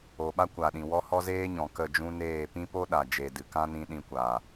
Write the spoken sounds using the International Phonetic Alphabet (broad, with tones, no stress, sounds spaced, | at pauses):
o˨ ɓ a˦ kʷ a˨ ɗ ĩ˨ w ɔ˧ h ɔ˧ z eː˦ ɲ ɔ̃˨ k ə˦˨ d͡ʒ ũ˦ n eː˦˨ p ĩ˦ p o˦ ɗ a˨ d͡ʒ e˨ d ɨ˨ k ã˦ n ĩ˧ ɗ ĩ˧ kʷ a˨